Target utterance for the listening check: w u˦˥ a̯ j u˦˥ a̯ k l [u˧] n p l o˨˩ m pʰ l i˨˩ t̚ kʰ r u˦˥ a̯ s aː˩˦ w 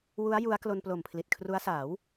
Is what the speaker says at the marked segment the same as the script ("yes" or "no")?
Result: no